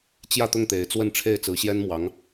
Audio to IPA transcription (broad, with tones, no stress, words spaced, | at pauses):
t͡ɕjä˥˧t̪ʊ˥˩ŋ t̪e˧˥ɪ̯t͡swə˥˧nʈ͡ʂʰe˥˩ɪ̯ t͡sɹ̩˧˥ɕjɛ˥nmwɑ˧˥ŋ